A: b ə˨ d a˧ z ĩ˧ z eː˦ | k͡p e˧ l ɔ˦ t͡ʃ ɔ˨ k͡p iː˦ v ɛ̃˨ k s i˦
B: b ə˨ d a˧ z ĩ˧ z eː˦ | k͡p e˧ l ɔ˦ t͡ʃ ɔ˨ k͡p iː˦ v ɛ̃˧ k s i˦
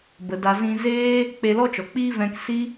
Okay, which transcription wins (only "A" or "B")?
B